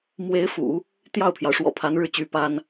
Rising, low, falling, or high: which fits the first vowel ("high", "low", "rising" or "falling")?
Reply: rising